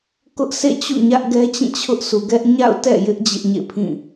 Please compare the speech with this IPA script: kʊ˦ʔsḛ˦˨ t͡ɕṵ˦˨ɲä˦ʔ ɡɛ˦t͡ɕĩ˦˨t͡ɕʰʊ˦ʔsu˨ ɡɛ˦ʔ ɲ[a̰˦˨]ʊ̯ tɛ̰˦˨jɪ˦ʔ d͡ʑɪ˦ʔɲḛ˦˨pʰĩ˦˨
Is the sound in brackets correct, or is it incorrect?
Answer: correct